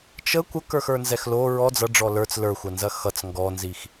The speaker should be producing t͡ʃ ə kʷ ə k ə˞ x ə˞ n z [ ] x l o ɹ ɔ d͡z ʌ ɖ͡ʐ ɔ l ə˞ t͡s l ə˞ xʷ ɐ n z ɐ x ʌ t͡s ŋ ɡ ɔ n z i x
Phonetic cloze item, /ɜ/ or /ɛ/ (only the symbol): ɛ